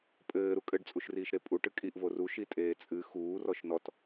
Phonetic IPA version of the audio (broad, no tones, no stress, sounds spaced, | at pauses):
pʼ ɘː ɾ u kʼ ɘ ɖ t͡sʼ u ʃ r iː ʃ ɾ e pʼ u ʈ ɨ kʼ i ʔ v o r u ʃ i tʼ eː t͡sʼ ɨ x uː r ɔ ʃ n ɔ t